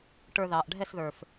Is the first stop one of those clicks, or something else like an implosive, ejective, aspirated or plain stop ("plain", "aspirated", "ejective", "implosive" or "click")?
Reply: plain